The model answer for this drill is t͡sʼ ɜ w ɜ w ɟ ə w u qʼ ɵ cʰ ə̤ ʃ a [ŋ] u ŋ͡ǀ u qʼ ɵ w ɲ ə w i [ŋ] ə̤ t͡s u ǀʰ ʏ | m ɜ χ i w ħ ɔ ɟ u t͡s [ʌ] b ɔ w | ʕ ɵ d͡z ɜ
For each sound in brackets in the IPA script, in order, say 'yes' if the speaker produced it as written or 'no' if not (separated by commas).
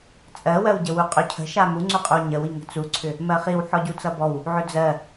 no, yes, yes